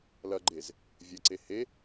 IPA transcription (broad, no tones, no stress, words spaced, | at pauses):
lɐɡ͡ǃez | vʲɐǀe he